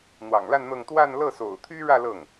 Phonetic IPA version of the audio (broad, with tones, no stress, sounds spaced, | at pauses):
n̪ w ɑ̰˨˩ ŋ l a˥˧ n n̪ ɤ˥˧ ŋ t̪ w a˥˧ n l ɤ˥˩ s o̰˨˩ ʊ̯ t̪ʰ y˥ ɻ ä˥˧ l ɤ˥˩ ŋ